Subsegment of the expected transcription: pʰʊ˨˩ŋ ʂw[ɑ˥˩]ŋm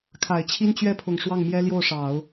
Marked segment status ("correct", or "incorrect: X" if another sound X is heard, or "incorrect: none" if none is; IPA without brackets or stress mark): correct